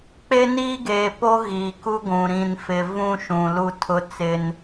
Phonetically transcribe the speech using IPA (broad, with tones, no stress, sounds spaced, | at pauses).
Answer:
k͡p e˦ n iː˦ ɡ eː˨ p o˦ ɣ iː˨ k u˦ ɡʷ ũ˨ ɾ ĩ˨ n f ɪ˨ v ũ˦ ʃ ũ˨ l u˦ tʰ ʊ˦ t͡s ɪ˦ n